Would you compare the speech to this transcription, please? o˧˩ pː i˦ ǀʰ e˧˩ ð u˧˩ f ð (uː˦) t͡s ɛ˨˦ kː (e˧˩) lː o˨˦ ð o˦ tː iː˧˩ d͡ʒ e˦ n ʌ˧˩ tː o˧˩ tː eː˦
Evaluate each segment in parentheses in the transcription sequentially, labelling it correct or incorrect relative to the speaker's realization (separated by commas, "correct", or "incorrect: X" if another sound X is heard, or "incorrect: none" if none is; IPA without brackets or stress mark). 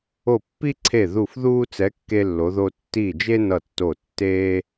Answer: correct, incorrect: e˦